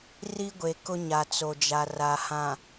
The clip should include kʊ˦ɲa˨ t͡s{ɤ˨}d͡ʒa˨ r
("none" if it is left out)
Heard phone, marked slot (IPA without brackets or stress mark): o˨